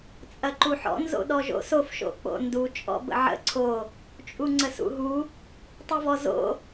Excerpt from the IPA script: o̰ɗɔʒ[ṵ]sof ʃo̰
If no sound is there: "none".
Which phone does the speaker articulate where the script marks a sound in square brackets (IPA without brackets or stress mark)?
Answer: o̰